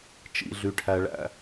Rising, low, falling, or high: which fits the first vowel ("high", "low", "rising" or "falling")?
low